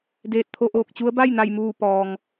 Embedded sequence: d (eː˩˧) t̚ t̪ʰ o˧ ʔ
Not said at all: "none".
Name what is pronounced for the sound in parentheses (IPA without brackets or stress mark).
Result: eː˧˩